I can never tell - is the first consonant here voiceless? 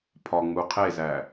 yes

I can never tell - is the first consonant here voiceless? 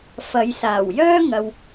yes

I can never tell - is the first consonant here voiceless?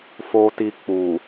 yes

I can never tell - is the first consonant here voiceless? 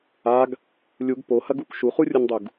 no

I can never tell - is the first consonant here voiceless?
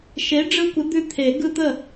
yes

